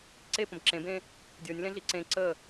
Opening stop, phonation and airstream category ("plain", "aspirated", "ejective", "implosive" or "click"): click